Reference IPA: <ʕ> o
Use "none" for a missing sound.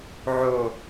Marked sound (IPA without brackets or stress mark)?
ʕ